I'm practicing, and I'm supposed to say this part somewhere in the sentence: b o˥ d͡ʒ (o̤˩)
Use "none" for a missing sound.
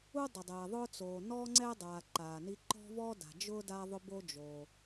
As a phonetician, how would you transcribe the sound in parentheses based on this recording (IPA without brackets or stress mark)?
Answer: o˩